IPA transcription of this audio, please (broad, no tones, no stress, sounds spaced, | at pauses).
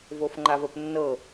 v o f ŋ͡ǃ a v ə p nː ɤ